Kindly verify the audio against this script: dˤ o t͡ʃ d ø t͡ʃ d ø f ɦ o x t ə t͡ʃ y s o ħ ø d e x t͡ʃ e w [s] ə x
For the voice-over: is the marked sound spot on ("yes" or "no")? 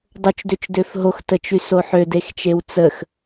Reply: no